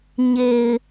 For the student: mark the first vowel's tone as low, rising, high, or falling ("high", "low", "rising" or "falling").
low